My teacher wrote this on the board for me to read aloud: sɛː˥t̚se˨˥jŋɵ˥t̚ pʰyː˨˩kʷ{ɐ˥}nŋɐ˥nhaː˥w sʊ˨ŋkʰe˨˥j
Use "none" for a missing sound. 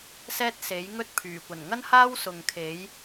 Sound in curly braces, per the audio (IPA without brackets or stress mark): ɐ˨˩